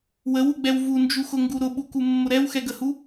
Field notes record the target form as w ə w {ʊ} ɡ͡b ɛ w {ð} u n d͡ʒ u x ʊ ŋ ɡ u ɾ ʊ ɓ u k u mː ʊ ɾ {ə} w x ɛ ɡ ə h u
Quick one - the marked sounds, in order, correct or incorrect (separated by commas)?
incorrect, incorrect, incorrect